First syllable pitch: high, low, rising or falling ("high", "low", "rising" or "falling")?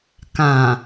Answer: low